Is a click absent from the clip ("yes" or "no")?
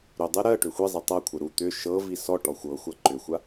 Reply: no